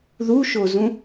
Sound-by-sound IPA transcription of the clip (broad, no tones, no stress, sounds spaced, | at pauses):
ð u ʃ o z ũ